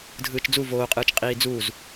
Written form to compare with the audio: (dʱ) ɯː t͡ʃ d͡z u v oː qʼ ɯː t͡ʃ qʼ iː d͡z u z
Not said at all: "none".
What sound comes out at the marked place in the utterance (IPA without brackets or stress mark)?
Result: dʱ